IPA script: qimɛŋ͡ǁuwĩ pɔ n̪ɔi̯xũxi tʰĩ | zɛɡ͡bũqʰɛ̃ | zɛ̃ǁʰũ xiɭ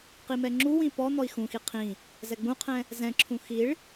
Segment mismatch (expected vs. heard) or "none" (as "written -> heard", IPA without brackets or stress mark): tʰ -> qʰ